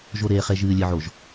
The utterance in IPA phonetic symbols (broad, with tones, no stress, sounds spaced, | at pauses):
ʒ o˨ ɾ eː˨ χ e˨ ʒ ɨː˨ lʲ ɨ˨ ʕ o˨ ʒ